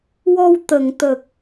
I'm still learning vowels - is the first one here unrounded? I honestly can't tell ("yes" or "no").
no